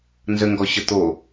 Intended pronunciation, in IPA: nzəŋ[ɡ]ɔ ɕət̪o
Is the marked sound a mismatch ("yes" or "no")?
no